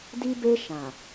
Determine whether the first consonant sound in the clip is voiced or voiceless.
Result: voiced